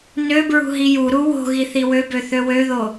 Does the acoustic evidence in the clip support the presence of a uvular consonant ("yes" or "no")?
no